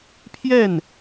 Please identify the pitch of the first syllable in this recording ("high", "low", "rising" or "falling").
falling